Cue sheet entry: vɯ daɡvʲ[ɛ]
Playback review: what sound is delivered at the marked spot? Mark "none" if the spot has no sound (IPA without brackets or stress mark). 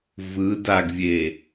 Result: e